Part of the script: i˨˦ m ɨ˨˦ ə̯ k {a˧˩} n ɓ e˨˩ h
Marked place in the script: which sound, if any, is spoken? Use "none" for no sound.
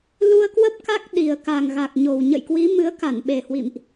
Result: a˧˩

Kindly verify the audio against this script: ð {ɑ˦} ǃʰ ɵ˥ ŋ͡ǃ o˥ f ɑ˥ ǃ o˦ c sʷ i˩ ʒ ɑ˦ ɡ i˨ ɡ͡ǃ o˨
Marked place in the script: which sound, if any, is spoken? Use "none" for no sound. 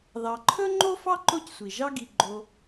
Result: ɑ˨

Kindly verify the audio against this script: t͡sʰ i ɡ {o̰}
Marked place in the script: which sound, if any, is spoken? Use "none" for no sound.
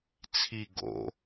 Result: o̰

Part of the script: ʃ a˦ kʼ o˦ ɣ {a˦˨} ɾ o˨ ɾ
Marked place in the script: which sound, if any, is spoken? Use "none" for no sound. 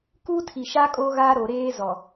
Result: a˦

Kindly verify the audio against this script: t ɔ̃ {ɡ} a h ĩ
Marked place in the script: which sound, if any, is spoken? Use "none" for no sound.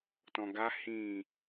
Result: ɡ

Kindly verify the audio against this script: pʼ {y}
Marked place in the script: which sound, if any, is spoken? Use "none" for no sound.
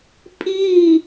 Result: i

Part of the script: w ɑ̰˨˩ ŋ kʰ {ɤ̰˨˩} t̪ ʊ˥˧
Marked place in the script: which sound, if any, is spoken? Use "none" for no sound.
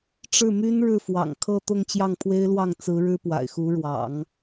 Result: ɤ˥˧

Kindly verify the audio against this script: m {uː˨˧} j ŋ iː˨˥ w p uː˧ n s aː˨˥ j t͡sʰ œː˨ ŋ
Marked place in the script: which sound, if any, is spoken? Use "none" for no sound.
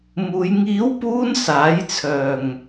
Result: uː˨˧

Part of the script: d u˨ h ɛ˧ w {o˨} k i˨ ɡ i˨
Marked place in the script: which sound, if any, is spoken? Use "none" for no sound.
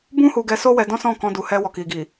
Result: ɔ˨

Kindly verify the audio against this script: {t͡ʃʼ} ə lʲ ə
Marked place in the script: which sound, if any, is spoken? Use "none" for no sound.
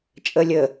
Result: t͡ʃʼ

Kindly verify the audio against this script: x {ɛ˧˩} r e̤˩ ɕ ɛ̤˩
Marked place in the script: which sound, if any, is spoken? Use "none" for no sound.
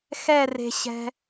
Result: ɛ˧˩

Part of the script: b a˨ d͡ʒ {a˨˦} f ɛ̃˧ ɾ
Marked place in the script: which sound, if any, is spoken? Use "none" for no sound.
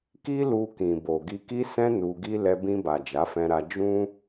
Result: a˨˦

